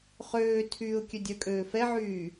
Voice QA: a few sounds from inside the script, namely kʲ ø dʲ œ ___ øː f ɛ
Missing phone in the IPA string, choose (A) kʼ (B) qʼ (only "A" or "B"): A